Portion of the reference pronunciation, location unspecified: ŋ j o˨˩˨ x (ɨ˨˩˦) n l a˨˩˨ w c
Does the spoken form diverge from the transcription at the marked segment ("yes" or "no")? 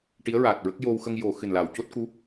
yes